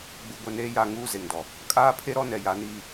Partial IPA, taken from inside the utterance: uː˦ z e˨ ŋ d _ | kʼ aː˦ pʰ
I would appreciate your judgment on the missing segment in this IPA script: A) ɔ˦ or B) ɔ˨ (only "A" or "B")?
B